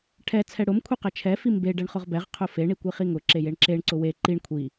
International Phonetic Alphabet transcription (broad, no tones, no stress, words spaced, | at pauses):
ʈʰɛ t͡sʰɛɽʊm kʷʰiqɛt͡ʃʰɛ fimbe ɖɛɳχʊʁbɛʁ qʰʊfe ɳikʷiχiŋʊ ǁejeɳǁeɳ ǀʊwe ǃiɳ kʷʰi